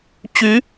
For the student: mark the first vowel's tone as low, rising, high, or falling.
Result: rising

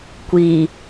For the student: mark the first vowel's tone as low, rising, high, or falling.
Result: low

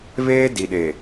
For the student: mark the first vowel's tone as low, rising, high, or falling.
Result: high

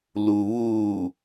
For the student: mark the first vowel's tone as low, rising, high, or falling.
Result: low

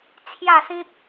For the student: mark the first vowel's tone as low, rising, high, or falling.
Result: falling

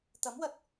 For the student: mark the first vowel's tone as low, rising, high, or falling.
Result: rising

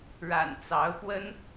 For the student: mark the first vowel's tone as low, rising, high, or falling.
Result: low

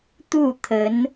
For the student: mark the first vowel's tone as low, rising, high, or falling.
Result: falling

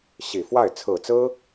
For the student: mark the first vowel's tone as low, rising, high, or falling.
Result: low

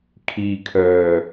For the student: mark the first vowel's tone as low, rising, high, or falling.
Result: low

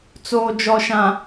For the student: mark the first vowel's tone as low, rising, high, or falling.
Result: low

